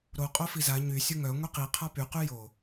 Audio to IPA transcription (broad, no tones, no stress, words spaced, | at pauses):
ɾo qʼofiza ɲy sʲoŋœ ŋʷiqi qʰapy qyjo